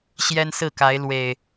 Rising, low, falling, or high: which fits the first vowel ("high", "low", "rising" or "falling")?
high